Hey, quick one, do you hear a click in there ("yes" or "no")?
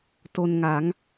no